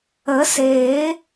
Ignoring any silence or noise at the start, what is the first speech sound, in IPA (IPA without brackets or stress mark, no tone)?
ə